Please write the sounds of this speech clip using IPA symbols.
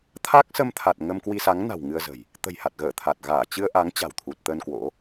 t̪ʰaː˦˥k̚sə˧mt̪ʰa˨˩t̚ ŋə˧mkwi˧sa˨˦ŋ na̤˨˩w ŋɨ˧ə̯zə̤˨˩j | t̪ə̤˨˩jha˨˩t̚ɣəː˧˩ t̪ʰa˨˩t̚ɣaː˧˩ t͡ɕɨ˧ə̯ʔa˨˦ŋ t͡ɕa̤˨˩wt̪ʰu˨˩t̚ t̪ə˧n kwo̰˧˥

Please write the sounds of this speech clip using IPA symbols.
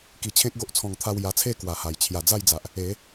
ki˧t͡ɕʰẽ˦k̚ɡo˦ʔ t͡sʰɔ̃˧ŋt̪ʰa˥˧w ja˧t͡sʰe˥˧ kwa˨˩ha˨˩j t͡ɕʰja˨˩d͡za˥˧jd͡za˨ʔ | e˨˦

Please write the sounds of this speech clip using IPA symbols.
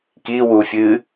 ki wufʲɨ

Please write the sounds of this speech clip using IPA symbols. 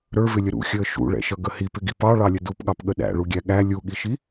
ɾə˞vɪlʲə ɾṵxʲəː ʃṵɭɛ̰ʃʌɡə hipɪɡi pɑɭɑlʲə dupɠɑpɠə ɗæ̰ɭuɡʲæ ɠæ lʲuɠiʃi

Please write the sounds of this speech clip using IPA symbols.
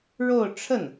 ɻo˥˧ʊ̯ ʈ͡ʂʰə˥˩n

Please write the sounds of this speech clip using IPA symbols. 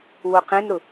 woqẽnɾʊ

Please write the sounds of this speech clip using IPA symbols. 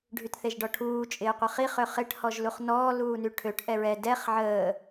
ɖʱytθeʒɖɔʈʰuː t͡ʃʼɪːqʷəχi χøχɪʈ hɔʒluχnɔː luːnyʈʰøʈ ʔɛɹɛ dɛχ ʕəː

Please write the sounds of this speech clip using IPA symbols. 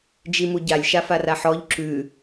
d͡ʒimuɟalʲ ʃafaraħɔʎ ǁʉ

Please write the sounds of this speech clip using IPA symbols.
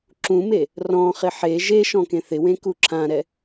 ǁũme | rɔ̃χɪ ħe ʒeʃɔ̃ kẽθɪwẽ kuǁʰãɾɛ

